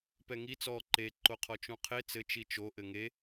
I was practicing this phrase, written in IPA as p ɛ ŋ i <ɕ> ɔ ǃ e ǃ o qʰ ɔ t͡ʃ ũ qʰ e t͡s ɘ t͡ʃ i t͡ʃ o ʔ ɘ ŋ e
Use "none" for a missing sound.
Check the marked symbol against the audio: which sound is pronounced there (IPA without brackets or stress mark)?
t͡s